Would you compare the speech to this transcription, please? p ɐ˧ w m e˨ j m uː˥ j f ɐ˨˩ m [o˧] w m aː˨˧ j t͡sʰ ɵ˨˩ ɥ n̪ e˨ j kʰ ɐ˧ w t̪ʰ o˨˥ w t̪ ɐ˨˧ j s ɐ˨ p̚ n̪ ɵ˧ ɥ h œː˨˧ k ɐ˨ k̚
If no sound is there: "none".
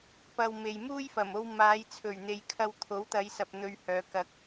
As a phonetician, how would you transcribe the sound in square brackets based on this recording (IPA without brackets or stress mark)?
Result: o˧